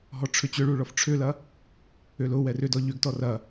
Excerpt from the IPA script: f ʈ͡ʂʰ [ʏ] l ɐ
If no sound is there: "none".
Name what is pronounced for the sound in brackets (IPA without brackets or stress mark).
ʏ